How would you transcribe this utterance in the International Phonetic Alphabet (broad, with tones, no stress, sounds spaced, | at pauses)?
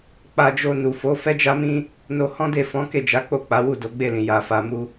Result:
k͡p a˧ d͡ʒ o˧ n u˨ f o˨˦ f ɛ˦ d͡ʒ a˦ m ĩ˦ | n o˧ h ɔ̃˦ d e˦˨ f ɔ̃˨˦ k e˦˨ d͡ʒ a˨˦ k͡p o˦˨ k͡p a˨˦ w u˦˨ d o˨˦ ɡ͡b e˦˨ l ĩ˨ j a˧ f a˧ m u˦